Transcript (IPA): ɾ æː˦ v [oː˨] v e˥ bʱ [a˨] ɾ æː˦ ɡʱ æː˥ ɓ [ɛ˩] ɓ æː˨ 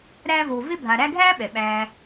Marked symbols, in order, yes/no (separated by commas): yes, yes, yes